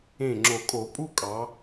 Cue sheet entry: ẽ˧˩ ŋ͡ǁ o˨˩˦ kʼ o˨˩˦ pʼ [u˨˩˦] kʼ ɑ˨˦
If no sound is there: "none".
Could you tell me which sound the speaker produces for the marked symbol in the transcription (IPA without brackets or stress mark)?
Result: u˥˧